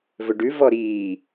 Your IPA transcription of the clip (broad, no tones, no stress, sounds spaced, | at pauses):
v ɵ ɖ ʉ v ɔ ɾ iː